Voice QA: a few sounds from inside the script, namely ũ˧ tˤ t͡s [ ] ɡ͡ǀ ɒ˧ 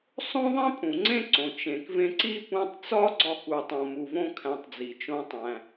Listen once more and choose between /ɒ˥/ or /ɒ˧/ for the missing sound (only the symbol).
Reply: ɒ˥